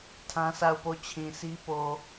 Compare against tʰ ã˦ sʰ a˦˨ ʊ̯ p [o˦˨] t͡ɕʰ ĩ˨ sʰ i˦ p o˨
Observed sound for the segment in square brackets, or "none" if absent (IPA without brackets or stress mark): o˦˨